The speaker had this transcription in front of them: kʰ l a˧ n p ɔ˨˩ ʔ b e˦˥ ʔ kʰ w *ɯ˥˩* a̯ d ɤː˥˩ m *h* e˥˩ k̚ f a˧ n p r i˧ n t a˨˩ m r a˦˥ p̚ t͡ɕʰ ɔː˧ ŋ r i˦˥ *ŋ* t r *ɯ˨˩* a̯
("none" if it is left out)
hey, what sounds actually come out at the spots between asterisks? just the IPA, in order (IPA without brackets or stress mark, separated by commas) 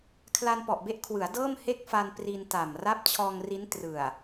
ɯ˩˦, h, n, ɯ˨˩